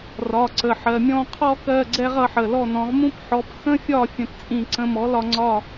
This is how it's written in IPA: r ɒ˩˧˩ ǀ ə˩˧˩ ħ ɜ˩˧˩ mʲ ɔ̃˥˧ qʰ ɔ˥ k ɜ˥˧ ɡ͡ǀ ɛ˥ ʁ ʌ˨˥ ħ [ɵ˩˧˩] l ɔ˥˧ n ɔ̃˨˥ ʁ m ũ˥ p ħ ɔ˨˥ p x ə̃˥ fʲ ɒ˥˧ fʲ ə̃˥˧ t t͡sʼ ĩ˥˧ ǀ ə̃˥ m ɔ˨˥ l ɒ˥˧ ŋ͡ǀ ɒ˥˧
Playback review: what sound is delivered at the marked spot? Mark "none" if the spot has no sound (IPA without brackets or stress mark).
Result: ə˩˧˩